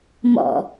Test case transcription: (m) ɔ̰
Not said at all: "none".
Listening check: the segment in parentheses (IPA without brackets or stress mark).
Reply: m